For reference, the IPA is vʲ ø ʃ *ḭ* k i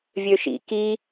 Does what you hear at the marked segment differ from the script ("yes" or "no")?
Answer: no